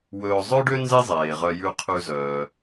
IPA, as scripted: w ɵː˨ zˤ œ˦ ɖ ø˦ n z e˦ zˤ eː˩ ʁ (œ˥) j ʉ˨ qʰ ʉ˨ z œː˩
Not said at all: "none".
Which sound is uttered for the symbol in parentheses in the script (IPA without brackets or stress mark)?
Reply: œ˨